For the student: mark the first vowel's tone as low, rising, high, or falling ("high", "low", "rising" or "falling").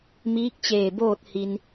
rising